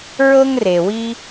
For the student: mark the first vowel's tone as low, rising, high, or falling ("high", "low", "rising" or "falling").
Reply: high